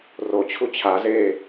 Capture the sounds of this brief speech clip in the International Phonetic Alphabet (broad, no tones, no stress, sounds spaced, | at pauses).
r o t͡ɕʰ u t͡ɕʰ a z eː